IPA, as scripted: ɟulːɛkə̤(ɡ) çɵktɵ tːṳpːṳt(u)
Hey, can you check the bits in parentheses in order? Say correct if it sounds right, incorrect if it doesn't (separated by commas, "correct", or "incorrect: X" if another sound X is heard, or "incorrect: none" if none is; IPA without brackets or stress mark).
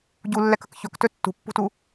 incorrect: k, correct